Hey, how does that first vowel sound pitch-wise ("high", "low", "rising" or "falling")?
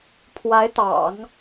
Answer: rising